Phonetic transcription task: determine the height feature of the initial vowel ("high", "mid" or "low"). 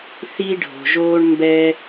high